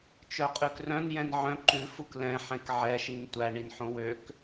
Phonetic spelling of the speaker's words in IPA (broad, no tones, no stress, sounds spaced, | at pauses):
t͡ʃ œ qʼ ʉ k r œ̃ n j ɛ̃ n ʕ œ̃ ǃ ʉ f u k l ɛ̃ ħ ɛ̃ k ʕ ɛ ʃ i n tʷ æ ɳ i n ħ õ w ø k